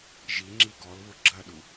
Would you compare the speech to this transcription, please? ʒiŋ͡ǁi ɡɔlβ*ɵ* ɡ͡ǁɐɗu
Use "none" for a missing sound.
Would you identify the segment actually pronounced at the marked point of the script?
ʊ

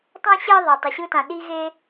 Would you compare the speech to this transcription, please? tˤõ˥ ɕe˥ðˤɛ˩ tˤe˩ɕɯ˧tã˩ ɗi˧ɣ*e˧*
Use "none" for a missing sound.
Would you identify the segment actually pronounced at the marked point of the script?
e˧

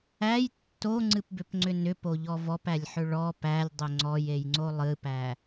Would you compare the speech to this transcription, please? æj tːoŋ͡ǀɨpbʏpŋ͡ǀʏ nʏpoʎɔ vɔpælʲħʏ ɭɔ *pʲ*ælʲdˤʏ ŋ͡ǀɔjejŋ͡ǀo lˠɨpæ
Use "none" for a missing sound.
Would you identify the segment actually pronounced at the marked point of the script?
p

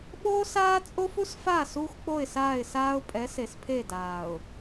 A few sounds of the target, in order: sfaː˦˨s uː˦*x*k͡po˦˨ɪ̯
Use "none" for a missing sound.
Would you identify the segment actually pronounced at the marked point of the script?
x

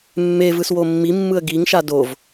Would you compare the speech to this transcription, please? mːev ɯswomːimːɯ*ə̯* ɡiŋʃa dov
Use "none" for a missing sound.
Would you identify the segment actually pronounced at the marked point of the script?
ə̯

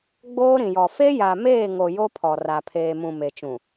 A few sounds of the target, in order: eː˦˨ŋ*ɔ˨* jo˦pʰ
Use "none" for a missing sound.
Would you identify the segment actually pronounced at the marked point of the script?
o˨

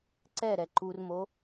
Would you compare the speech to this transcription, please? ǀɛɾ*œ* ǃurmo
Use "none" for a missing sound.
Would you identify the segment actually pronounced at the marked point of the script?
ɛ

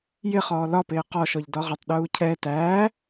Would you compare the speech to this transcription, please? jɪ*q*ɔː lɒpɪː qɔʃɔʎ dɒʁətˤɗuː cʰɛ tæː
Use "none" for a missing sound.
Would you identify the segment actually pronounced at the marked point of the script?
χ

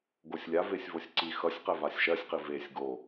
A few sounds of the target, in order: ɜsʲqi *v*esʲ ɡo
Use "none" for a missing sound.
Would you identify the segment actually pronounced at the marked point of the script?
v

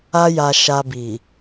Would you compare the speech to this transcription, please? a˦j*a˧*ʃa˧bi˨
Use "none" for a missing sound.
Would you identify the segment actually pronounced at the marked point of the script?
a˧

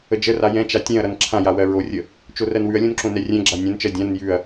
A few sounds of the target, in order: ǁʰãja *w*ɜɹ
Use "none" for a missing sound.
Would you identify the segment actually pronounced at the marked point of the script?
w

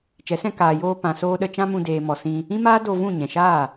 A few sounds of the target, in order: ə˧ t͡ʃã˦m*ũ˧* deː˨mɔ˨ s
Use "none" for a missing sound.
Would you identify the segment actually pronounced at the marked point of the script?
ũ˧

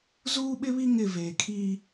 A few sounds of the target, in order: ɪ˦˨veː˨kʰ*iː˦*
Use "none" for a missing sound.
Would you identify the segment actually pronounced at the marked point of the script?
iː˦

